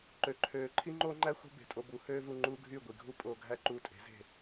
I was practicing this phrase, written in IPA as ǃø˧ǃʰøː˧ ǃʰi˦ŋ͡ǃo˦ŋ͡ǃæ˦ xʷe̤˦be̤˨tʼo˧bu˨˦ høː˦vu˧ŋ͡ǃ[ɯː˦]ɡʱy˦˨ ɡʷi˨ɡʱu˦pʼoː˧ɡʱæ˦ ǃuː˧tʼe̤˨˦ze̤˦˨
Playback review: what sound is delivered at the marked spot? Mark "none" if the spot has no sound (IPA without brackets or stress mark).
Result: uː˦